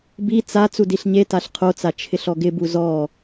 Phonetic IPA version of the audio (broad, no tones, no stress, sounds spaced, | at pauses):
b i t͡s a t͡s u d i ɬ ɲ e t a ɬ qʰ o t͡s a t͡ʃʰ ɪ ɬ ɔ ɡ ɪ b u z ɔ